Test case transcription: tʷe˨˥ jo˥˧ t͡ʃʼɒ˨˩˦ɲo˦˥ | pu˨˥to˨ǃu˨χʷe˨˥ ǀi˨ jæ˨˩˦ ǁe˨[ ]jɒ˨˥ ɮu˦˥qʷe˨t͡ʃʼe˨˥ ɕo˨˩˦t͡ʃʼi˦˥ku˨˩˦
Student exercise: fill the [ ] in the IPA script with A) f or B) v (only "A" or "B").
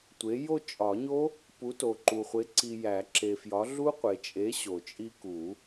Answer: A